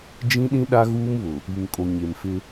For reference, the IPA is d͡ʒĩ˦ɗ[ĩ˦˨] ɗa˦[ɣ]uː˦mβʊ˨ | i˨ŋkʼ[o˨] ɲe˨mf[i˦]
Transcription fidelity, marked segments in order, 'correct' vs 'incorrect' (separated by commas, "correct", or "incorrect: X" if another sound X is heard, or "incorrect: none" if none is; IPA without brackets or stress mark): incorrect: ĩ˦, correct, correct, incorrect: ɪ˦